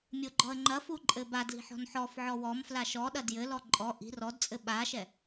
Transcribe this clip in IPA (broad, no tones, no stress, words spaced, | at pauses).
mʲoɡ͡ǃɔə̯ŋ͡ǃɐfu ǃʼɘbadli̤ ħɔ̤nħɔfʕɔ wɔm flaʃɔɗɐ djɘlɔ ǃʼɔ ʔi̤ rɔdt͡sʼɘ ɓaʃɛ